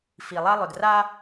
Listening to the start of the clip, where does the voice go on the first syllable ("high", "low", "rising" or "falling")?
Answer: low